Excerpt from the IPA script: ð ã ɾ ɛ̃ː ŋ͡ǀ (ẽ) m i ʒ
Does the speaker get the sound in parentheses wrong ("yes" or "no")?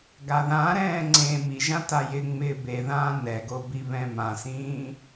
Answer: no